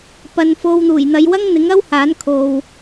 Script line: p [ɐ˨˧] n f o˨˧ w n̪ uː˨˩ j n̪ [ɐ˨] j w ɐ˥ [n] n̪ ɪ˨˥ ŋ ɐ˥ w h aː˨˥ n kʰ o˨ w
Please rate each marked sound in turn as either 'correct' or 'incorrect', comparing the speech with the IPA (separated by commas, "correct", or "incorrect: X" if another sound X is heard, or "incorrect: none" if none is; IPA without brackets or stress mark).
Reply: correct, incorrect: ɐ˨˧, incorrect: ŋ